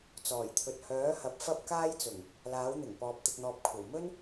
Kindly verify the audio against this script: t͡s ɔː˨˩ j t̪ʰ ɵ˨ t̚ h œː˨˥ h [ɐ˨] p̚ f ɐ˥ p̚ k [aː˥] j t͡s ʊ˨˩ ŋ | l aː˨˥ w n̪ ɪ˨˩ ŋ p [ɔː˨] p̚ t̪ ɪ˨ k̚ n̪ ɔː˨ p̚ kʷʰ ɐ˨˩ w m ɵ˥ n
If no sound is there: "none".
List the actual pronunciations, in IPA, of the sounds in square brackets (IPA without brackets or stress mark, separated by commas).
ɐ˨˥, aː˥, ɔː˨